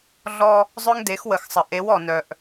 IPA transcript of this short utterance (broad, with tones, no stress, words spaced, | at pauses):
ɮɔ˦ | zˤœ˦ŋde˨˦xwə˨xsˤə˨ ʔe˨˦wɔ˨ nœ˨ʔ